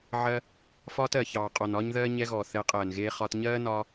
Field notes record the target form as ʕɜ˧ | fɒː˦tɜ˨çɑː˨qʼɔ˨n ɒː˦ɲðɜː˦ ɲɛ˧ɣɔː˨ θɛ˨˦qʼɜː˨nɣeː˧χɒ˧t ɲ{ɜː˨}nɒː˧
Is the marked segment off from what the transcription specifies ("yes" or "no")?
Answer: yes